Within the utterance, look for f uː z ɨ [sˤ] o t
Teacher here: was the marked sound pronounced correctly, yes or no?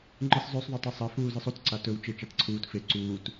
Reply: yes